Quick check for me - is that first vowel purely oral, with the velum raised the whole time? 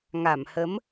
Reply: yes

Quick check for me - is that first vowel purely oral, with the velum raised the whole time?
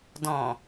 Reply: no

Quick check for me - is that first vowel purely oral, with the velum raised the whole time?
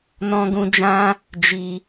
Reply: no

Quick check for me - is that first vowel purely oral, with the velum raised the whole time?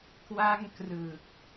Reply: yes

